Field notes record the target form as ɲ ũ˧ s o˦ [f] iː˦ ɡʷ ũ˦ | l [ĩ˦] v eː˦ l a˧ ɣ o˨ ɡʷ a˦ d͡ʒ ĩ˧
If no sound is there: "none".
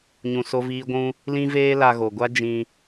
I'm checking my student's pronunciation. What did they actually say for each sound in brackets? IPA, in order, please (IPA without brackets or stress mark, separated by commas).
v, ĩ˦